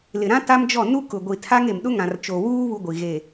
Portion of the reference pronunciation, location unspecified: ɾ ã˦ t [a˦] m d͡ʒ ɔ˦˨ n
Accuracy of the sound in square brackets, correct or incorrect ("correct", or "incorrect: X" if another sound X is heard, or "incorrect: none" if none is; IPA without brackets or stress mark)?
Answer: correct